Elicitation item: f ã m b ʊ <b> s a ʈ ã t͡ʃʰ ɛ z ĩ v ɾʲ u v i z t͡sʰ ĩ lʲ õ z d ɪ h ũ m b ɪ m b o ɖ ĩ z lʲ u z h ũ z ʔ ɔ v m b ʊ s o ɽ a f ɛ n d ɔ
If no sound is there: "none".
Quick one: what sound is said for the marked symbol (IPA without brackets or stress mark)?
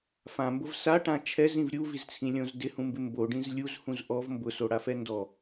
v